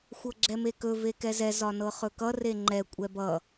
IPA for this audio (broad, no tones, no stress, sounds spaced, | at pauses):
xʷ ɤ ɡ͡ǁ ɛ m e k ɵ v e k ɛ z ɛ z ɒ n ɤ χ ɵ k ʌ r e ŋ͡ǃ ɛ kʷʼ ɛ b ʌ